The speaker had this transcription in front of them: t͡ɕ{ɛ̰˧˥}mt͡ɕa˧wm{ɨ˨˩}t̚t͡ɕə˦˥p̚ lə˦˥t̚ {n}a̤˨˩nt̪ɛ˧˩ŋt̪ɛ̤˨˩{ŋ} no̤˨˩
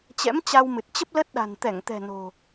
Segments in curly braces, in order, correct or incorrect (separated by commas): correct, correct, incorrect, incorrect